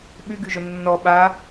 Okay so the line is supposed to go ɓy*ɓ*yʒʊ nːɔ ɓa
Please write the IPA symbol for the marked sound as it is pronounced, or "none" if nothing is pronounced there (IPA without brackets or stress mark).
ɡ